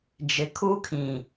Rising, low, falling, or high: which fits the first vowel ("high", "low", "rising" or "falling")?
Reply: low